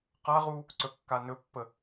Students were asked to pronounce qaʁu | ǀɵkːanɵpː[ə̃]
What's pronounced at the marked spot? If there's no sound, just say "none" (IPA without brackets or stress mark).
ə